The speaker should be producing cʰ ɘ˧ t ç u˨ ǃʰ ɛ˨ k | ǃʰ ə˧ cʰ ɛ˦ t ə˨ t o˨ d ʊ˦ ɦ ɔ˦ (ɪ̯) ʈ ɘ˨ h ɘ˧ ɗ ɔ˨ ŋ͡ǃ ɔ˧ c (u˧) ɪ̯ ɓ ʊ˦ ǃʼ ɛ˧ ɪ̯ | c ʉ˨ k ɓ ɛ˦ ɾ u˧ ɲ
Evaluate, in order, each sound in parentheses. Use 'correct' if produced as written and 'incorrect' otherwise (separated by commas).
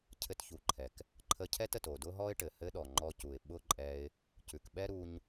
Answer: correct, incorrect